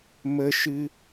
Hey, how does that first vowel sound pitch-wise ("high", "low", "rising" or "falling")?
high